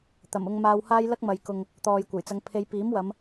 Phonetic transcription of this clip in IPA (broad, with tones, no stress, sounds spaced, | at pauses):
t̪ ɐ˨˩ m ʊ˧ ŋ m aː˧ w h aː˥ j l ɐ˥ k̚ m ɐ˨ j k ʊ˨ ŋ | t̪ ɔː˨ j kʷ ɐ˨˩ j t͡s ɐ˨˧ ŋ pʰ e˨˧ j p iː˨˥ m w ɐ˨˧ m